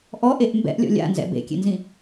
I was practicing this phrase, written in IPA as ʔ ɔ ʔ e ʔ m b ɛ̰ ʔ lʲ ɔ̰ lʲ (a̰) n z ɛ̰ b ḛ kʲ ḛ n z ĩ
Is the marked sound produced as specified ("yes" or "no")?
yes